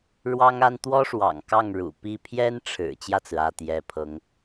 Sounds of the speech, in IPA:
ɻ w ɑ˥ ŋ a˥ n t̪ w ɔ˥ ʂ w ɑ̰˨˩ ŋ k ɑ˥˩ ŋ ɻ ṵ˨˩ p i˥˩ pʰ j ɛ˥ n ʈ͡ʂʰ ɻ̩˨˩ t͡ɕ j ä˥˩ t͡s ɹ̩˩ ä˥˩ t̪ j ɛ˧˥ pʰ ɤ˧˥ ŋ

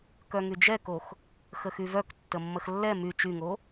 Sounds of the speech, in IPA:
k œ ŋ y d͡ʒ ɛ k o x | x ə x y v œ k tː ə mː ə x lː ɛ m y t͡ʃ y ŋ o

